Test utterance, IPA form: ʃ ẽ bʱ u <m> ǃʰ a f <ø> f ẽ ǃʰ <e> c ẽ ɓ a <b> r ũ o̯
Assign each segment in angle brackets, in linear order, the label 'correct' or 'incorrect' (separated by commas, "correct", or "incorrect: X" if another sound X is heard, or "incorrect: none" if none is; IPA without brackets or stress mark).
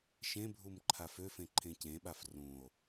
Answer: correct, correct, incorrect: ẽ, incorrect: f